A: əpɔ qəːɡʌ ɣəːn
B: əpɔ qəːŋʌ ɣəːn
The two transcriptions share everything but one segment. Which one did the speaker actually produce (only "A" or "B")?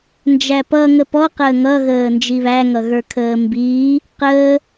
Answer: B